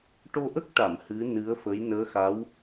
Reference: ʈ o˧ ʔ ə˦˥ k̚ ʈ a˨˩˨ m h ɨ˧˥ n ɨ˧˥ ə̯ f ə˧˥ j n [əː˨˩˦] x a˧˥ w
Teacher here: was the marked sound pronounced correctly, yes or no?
no